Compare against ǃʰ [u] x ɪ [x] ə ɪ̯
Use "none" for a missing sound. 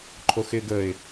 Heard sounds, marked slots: o, ɡ

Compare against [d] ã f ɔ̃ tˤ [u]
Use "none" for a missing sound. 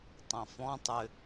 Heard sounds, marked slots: tˤ, ʏ

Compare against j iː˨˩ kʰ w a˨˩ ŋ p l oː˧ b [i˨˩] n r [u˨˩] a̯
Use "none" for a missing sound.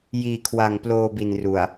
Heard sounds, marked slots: i˨˩, u˨˩

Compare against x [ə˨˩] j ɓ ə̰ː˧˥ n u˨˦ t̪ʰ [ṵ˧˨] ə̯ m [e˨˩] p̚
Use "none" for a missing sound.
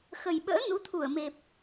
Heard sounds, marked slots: ə˨˩, u˧˩, e˨˩

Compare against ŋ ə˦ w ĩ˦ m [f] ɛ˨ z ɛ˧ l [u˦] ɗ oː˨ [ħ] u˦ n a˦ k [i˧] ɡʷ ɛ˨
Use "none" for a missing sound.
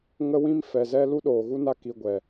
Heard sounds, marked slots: f, u˦, ɣ, i˧

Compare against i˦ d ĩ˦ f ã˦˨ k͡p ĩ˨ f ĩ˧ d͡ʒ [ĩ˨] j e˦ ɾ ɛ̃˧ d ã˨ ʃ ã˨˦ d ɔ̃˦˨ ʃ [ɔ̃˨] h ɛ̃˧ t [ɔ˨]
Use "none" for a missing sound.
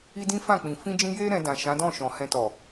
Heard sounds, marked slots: ĩ˧, ɔ̃˨, ɔ˨

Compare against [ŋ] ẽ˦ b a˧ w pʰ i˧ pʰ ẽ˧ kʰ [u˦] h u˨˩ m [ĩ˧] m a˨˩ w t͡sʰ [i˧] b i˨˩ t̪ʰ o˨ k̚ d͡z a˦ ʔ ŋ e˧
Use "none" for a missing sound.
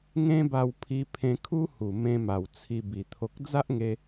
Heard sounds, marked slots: ŋ, u˦, ẽ˧, i˧

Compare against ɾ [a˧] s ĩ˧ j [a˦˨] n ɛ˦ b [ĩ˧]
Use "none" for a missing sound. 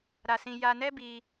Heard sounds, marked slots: a˧, a˧, i˧

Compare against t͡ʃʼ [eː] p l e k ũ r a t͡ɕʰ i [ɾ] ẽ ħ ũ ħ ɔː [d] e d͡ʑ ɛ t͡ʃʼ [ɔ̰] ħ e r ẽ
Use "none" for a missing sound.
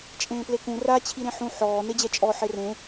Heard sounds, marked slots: ẽː, ɾ, n, ɔ

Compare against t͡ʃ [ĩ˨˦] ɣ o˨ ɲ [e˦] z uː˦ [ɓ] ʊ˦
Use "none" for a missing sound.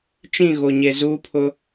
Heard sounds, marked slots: ĩ˦˨, e˨, pʰ

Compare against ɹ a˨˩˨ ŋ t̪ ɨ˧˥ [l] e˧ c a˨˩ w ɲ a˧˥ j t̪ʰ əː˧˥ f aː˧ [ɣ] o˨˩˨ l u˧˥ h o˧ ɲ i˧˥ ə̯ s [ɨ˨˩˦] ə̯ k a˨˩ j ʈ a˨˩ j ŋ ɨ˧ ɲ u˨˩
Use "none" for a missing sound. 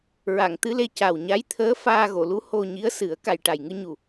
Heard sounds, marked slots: l, ɣ, ɨ˨˩˦

